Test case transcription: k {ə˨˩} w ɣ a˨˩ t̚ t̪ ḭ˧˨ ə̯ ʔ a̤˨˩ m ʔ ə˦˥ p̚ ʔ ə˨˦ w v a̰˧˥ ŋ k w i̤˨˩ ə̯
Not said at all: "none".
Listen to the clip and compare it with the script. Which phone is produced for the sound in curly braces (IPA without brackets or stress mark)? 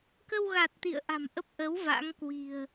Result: ə˧